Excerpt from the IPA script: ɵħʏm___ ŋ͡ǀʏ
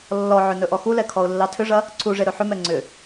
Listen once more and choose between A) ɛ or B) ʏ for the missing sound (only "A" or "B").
A